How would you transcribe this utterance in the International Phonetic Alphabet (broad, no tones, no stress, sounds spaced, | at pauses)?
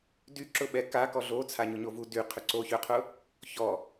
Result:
d y ǁ ʊ ɓ ɛ k a k ɔ ɮ o t͡sʰ a ɲ ʊ ɲ o v u d y qʰ ʏ ǀ o ç ø qʰ ʊ | ç ɔ